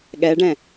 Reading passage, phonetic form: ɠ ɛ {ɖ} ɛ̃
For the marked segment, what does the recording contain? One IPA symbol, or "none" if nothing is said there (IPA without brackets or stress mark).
ɖ